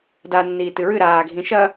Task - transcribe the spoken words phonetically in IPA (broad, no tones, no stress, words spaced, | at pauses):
da nːiːtɨɹɨ ɾaː ɡʱĩʃɐ